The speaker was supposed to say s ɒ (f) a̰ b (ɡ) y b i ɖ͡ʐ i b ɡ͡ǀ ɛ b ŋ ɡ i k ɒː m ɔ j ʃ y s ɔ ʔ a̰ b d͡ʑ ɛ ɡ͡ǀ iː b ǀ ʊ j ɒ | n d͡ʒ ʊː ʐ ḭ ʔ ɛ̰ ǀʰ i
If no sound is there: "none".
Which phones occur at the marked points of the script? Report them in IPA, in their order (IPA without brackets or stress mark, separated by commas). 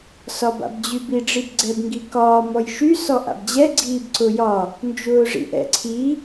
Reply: b, d͡ʑ